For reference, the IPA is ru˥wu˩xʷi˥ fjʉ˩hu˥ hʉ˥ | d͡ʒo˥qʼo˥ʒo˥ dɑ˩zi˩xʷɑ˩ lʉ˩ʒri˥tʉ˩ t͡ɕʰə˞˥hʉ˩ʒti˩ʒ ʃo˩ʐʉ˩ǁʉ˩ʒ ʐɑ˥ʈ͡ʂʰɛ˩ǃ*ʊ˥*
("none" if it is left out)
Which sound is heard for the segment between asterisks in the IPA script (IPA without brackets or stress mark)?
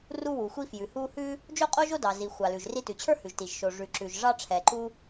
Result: u˥